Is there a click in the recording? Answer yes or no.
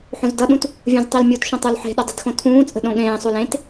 no